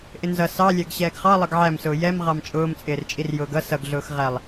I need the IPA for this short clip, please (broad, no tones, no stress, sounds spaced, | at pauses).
ʔ ɪ n z ʌ s ɑ lʲ æ ɡ ɕ ɛː ɡ χ ɑ lˠ ʌ ɡ ʕ æ m s ʊː j ɛ m ʁ ɑ m t͡ʃʼ ʊː m t͡sʼ ɪː r t͡ʃʼ i r j ʊː ɡ ʌ s ʌ ɡ ɮ ʊː x ʁ æ lˠ